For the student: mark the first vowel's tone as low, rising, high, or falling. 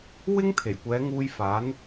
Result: high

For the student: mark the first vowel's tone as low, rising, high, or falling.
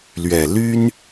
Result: low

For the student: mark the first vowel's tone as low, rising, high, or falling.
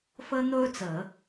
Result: high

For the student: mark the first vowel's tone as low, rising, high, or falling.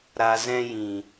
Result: low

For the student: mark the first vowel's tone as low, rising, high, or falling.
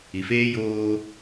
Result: low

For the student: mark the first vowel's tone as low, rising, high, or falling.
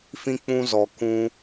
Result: high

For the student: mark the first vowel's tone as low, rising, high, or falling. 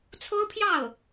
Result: high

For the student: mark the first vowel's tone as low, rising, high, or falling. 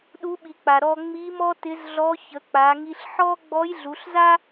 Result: rising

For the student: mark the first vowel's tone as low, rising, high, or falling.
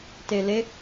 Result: low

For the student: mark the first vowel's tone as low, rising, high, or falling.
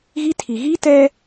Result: high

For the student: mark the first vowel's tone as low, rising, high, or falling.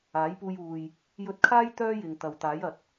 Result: rising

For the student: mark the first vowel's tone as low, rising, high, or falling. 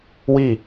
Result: falling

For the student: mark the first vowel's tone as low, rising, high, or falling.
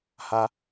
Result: high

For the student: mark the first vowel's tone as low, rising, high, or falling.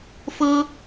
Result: high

